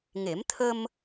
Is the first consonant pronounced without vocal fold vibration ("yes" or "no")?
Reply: no